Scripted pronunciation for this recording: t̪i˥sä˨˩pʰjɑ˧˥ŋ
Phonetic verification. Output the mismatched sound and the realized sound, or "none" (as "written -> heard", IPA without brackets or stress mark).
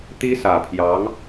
none